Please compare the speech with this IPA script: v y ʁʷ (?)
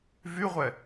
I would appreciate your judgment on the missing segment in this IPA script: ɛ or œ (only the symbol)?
ɛ